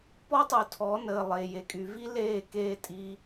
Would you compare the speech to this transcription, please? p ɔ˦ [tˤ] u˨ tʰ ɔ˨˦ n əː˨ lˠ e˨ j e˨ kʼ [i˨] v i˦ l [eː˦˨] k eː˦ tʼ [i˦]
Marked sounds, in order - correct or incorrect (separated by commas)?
correct, incorrect, correct, correct